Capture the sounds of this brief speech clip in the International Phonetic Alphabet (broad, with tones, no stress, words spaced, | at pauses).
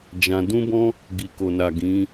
d͡ʒã˧ dũ˦bɔ̃˦ | ɡi˨ko˨na˨ ɡĩ˨˦